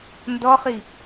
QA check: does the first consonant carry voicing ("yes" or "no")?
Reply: yes